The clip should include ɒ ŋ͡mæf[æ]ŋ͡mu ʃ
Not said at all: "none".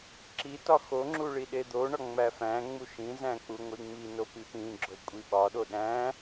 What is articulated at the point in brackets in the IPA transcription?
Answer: æ̃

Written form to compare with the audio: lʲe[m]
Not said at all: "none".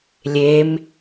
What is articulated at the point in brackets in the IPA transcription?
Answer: m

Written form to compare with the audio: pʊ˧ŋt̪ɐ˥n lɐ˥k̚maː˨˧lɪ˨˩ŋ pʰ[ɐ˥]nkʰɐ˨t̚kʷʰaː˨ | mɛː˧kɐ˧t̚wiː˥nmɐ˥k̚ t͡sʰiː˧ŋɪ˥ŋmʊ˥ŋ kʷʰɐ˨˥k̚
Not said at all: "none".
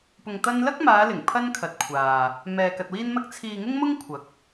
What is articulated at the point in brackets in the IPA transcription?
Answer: ɐ˥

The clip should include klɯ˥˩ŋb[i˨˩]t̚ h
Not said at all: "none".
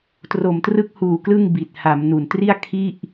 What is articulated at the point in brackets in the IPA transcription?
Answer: i˨˩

